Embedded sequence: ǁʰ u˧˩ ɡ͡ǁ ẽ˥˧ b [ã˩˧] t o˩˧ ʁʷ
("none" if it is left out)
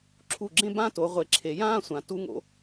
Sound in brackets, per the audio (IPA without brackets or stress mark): ã˥˧